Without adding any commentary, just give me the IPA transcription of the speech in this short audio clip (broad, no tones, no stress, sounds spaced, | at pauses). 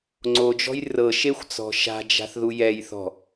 ŋ͡ǀ o d͡ʒ ɔ̤ j r ɤ ʃ e xʷ t͡s ɔ̤ ʃ a̤ d͡ʒ a̤ θ ð u j ɛ j θ ɔ̤